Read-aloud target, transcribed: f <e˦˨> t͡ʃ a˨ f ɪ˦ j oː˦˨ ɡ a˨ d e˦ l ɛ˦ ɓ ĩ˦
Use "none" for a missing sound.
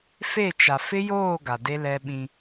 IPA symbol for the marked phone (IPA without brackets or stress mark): e˦˨